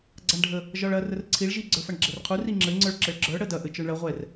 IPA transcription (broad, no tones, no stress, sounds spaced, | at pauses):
ɡ͡ǀ a ɳ ɖʱ ə | ʒ ɒ ɭ ɐ r ə r ǀʰ i ɭ ʒ i ɡ͡ǀ ə˞ f ɐ ɳ ɡ͡ǁ ɛ r qʰ u r i ŋ͡ǁ ɘ ŋ͡ǀ ə˞ ɭ ǁ ɘ ɭ ɡ͡ǁ ə˞ ɽ ə d ɐ ʔ ɘ t͡ʃ ə˞ ɳ ɭ ɐ ʁʷ ɛ r